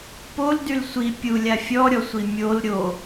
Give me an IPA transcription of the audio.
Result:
poldyl sʷi pʲulʲa fʲɔɾʲɔsʷi mʲol ɾʲo

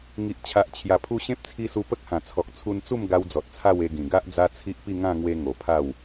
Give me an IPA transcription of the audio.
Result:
ŋi˨ʔt͡ɕʰa˨ʔ t͡ɕʰja˨˩pʰu˧ ɕẽ˦p̚t͡sʰi˧su˧ pə˦k̚hã˨˩t͡sʰɔ˨k̚ t͡sʰu˧nt͡su˥˧m ɡa˧wd͡zɔ˨t̚ t͡sʰa˥˧we˧ɡĩ˨˩ ɡa˦ʔd͡za˦t͡sʰi˦ʔpi˥˧ ŋã˥˧ŋwe˧ ŋo˨˩pʰa˥˧w

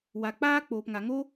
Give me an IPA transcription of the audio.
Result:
wa˨k͡paː˦ k͡poː˨pŋa˨ŋo˦

